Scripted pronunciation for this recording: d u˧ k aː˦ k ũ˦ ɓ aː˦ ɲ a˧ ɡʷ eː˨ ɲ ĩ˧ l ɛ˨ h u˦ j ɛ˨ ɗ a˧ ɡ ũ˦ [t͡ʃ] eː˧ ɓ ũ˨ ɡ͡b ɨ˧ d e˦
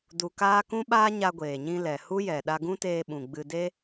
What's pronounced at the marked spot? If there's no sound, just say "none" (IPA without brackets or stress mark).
t